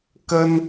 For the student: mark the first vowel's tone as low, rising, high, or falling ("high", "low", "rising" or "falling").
high